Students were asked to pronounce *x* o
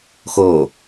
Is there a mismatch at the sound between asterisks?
no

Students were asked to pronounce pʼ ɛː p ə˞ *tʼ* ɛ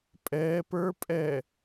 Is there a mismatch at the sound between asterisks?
yes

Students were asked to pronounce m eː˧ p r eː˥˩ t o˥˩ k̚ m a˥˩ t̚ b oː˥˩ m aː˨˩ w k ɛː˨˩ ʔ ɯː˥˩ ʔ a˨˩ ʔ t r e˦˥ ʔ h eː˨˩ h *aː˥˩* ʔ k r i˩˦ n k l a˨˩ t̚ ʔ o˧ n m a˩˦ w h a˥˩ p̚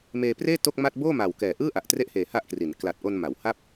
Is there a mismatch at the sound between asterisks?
yes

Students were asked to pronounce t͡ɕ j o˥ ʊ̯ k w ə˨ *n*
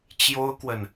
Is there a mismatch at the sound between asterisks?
no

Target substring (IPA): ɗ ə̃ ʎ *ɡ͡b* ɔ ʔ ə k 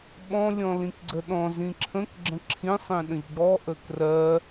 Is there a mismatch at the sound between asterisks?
no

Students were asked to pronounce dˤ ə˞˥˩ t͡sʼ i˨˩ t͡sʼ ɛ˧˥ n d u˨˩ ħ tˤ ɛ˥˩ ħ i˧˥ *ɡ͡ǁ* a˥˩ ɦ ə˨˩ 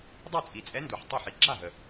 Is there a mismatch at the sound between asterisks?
no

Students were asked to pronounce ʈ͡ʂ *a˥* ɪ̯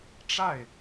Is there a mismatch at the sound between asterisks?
yes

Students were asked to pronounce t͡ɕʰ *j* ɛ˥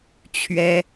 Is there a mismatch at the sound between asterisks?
yes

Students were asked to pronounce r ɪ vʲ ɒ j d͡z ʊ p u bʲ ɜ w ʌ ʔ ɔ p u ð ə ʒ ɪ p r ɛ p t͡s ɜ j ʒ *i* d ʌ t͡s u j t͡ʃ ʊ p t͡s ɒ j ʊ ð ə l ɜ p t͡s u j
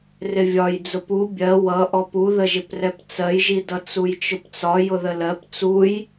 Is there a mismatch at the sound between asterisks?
no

